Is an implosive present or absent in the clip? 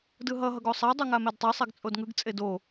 absent